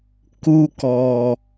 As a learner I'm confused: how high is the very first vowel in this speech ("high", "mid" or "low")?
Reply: high